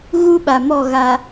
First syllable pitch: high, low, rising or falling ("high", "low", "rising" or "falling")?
high